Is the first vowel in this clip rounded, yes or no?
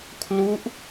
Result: yes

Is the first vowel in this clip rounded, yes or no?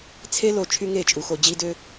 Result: no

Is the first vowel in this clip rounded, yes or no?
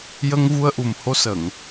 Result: no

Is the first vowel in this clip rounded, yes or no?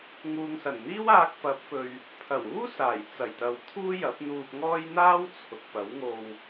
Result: yes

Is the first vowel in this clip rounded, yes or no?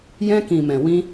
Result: no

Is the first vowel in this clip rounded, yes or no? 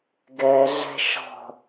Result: no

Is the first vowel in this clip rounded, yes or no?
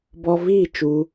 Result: yes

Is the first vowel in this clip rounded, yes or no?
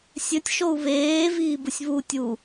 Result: yes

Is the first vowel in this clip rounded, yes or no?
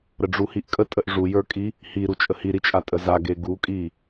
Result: no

